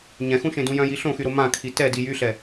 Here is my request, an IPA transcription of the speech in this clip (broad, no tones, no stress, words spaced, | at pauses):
ɲɛ̃xũʃẽdũ jœ̃ji ɬõxyɾo mãkʰi tɛdi jyɬɛ